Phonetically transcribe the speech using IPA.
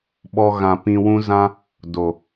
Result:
ɓɔ˦ɣã˧ pĩ˧wũ˦zã˦ | do˨

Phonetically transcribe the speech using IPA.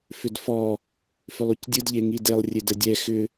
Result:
fʏdfɔ | fʏlˠucdʲɯd ʎeŋidelˠ rʲedədʲɛ xʏ

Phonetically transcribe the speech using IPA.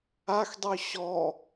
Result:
axdˤy ɕɔ

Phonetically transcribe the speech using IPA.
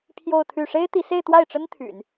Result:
pʰjo˥˧ʊ̯t̪ʰy˥˩ ʂe˥ɪ̯t̪i˧˥se˥˧ɪ̯ t̪wa˥˩ɪ̯ʈ͡ʂə˥n t̪ʰy̰˨˩˦n

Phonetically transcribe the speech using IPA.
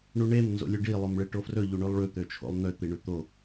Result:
ɳuɳem nzo̰lʲʉɖi lˠomɭeʈofrɵ ʎuɳʉlˠɭʉ t̪øt͡ʃʰo̰lˠn̪ø t̪iɳʉt̪o

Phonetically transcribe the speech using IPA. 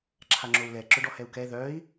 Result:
ǁʰaŋ͡ǁou̯lɛ ǁœɖɔhɛu̯kɛ ðœi̯

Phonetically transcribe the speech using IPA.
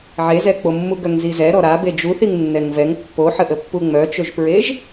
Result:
ʕezɛk͡pomːu ɡœŋzizɛ ɾɔɾa bed͡ʒu θiŋnːɛŋvɛŋ pːoħəʔəpːu ŋ͡mœt͡ʃøʒpɹeʒ

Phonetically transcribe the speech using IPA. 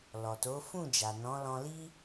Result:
lɔ˨to˨˦fũ˦˨d͡ʒa˨ nɔ̃˨˦lɔ̃˧li˦

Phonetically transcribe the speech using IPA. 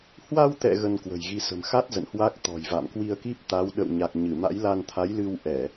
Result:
hwa˧wt̪ɛ̰˧˨ ɣə˧nkwə̤˨˩jɣi˧ sə̤˨˩mxa˦˥t̚zə̰˧˨n hwa˦˥k̚t̪ɔ̤˨˩jva̰˧˨m kwi˧ə̯ki˦˥p̚t̪a˨˦w ɗə̰˧˨wɲa˨˩k̚ɲɨ˧˩ ma̰˧˥jla˧nt̪ʰa˨˦jlɨ˧w ʔɛ˧˩˨

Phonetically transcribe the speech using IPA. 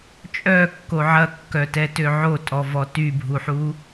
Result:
t͡ʃʼœkːo ʕɐkːœtɛtø ʕotʼɔvɔ tybʱuħu

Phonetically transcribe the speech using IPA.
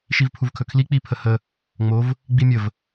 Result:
ʃivpʰuvkʰɵkʰli k͡pipʰəhə | ŋ͡mov | ɡ͡bimʲəv

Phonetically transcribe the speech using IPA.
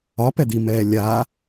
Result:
ɒpɛd̪imɛː lʲa

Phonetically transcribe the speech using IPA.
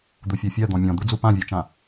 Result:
d̪ufʲɜfʲɜ d̪ɔ̃mʲɔ̃d̪ud͡zu pãvʲɜt͡ʃã

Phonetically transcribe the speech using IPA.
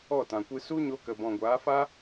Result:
ɔ˦˨tã˨kʷɨ˧ su˦ɲo˧kə˨ bɔ̃˨ɡʷaː˨˦fa˦

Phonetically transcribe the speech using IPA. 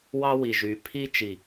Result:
wɑ˦wi˨ʒyː˨ pʰi˦ t͡ʃi˨

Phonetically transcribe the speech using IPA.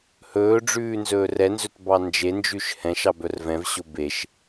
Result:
hɵː ɖ͡ʐʉːnzɵːrɛnzɵt bɑnd͡ʒend͡ʒʉʃ hɛ̃ʃɑ bœrvɛ̃vɕo beʃ

